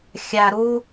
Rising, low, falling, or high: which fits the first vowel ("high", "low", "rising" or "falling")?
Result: low